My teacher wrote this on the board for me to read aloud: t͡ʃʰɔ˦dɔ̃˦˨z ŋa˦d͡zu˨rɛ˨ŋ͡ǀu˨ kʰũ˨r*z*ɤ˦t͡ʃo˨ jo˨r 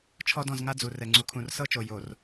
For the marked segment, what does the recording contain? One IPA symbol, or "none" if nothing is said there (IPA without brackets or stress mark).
s